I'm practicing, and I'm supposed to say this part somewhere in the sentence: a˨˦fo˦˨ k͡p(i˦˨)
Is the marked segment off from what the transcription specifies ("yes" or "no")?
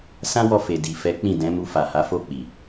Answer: yes